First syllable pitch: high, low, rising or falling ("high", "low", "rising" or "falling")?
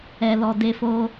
low